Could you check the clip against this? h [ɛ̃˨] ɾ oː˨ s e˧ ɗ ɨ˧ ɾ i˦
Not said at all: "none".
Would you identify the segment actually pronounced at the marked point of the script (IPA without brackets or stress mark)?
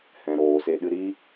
ɛ̃˨